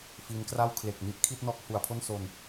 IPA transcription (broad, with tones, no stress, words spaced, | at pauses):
fiː˦˥nkra˥˩w kʰle˨˩k̚ ni˥˩ʔkʰi˥˩t̚ nɔː˦˥k̚ hu˩˦a̯pʰo˥˩nso˧n